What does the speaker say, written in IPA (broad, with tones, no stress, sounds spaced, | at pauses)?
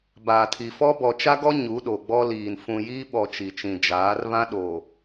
b aː˨ tʰ i˨ f ɔ˦ b ɔ˨ t͡ʃ a˦ ɡ ɔ˦ ɲ u˨˦ ɗ o˨ ɡ͡b ɔ˦ l iː˨ n f ũ˨ j i˦ ɓ ɔ˨ t͡ʃ i˨ t͡ʃ ĩ˨ d͡ʒ aː˨˦ r β ã˦ ɗ o˨